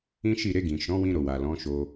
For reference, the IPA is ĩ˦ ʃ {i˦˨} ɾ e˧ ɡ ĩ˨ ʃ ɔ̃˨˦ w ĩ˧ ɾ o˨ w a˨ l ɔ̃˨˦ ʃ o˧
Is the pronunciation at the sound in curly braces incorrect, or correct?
correct